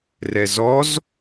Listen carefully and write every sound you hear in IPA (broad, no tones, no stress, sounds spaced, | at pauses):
r ɛ z ɔ z